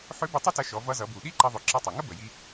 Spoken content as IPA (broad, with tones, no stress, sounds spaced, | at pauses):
ħ ʏ˧˥ b ə˧ tˤ ʌ˥ t ɐ˧ ʃ ɔ˩˧ v ʌ˧ z ʌ˩˧ b u˩ ɗ i˥ ǃ ɐ˧ ðˤ ʏ˩˧ ǁ ʌ˧ tˤ ɐ˩ ŋ ə˥ b ə˩ j i˧